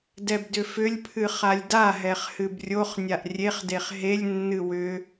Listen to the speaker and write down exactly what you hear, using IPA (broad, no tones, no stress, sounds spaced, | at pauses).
d ɛ b d ʏ f ʏ lʲ pʰ ɨ χ a lʲ d a ɦ ɛ χ h ɨ b rʲ o χ nʲ a ʔ rʲ e χ d e χ ɦ e lʲ nː ɨ w ʏ